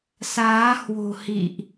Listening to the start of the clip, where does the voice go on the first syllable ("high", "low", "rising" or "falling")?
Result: rising